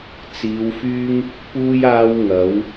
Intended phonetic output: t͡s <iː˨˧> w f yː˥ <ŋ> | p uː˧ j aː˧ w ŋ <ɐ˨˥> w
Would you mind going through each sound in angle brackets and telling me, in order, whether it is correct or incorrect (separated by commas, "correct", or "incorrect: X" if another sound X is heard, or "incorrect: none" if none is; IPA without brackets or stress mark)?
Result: correct, correct, correct